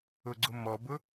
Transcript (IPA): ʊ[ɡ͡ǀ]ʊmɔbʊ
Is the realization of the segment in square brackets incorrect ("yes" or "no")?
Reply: no